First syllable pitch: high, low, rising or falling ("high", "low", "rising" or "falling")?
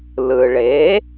low